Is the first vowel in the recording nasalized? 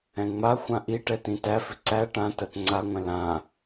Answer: yes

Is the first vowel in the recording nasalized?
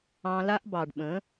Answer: yes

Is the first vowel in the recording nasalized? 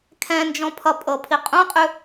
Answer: yes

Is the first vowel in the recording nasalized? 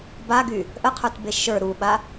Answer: no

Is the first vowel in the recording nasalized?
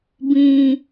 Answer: yes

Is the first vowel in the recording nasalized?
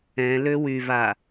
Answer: yes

